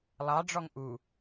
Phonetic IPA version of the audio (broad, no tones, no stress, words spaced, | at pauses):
lˠɑɖ͡ʐɔŋ ʔu